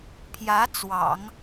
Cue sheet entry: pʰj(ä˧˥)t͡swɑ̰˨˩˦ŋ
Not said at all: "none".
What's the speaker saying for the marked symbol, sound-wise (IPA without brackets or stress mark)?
ä˧˥